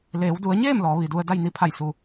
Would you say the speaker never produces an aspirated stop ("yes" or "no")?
no